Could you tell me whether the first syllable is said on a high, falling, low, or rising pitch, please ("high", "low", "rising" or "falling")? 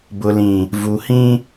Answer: low